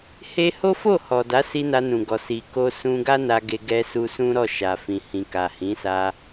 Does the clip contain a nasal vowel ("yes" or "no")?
yes